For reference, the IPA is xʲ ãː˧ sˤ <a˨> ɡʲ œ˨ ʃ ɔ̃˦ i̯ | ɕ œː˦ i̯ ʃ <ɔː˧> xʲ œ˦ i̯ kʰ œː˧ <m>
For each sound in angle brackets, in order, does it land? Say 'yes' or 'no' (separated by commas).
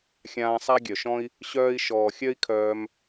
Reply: no, no, yes